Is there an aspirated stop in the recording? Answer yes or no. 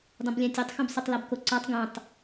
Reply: no